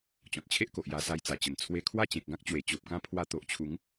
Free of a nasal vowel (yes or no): no